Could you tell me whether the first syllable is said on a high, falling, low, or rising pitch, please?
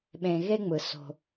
low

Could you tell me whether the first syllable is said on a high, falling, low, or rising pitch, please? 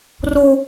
high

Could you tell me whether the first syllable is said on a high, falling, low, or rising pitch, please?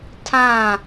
falling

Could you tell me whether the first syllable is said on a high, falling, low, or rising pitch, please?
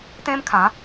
high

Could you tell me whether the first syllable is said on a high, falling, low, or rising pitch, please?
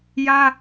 high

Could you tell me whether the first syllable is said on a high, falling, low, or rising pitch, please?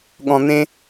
low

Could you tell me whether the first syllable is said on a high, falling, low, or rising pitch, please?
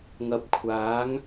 low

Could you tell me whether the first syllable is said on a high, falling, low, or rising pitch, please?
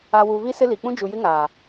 low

